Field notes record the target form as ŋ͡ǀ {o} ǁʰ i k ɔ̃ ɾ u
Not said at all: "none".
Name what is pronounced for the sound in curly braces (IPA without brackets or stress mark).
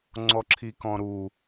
ɔ